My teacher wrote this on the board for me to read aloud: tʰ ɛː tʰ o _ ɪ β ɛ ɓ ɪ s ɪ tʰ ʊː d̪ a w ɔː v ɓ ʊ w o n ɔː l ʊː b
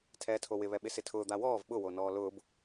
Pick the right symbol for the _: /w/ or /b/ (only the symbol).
w